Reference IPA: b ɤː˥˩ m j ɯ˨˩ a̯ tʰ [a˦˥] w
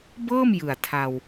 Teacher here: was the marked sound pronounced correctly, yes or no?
no